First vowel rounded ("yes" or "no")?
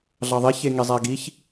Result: no